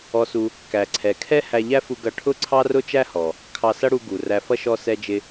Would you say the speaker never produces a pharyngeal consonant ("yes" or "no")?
yes